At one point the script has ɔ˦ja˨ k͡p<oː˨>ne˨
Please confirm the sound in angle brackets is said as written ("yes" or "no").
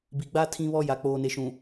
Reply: yes